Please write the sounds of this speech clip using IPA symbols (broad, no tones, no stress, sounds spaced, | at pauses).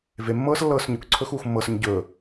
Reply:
v e mː ɤː s lː ɤː s ɲ ɵ k ǀʰ ɵ x uː x mː ɤ s ə ɲ ɟ ɵː